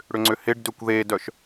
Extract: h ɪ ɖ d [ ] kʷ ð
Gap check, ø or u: ø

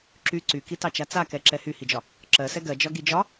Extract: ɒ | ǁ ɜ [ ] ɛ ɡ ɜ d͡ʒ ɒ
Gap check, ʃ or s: s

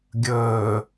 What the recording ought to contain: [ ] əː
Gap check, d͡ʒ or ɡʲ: ɡʲ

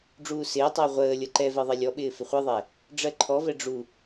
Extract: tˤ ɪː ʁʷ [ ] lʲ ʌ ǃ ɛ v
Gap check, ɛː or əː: əː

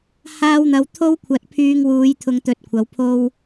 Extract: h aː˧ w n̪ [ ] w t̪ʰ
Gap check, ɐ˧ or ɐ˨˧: ɐ˨˧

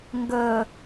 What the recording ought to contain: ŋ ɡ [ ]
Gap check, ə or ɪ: ə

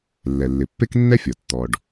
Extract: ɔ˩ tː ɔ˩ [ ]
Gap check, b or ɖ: ɖ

